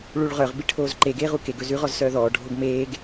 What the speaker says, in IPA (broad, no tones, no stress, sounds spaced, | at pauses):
ɭ u ɭ ʁ œ ʁ b i ʈʰ oː z ǃ e ɡ eː ʁ u k e ɡ ɵ z ʉ ʁ ɔ z s œː ð ɔː ɖʱ o ɡ m eː ɡ